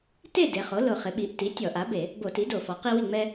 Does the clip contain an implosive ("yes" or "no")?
yes